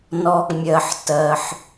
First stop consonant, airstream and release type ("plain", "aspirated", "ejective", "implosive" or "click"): plain